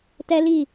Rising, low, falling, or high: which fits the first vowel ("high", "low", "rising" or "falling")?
high